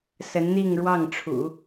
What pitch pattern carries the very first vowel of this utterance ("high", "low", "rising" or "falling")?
rising